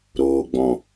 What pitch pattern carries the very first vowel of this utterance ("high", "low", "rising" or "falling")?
low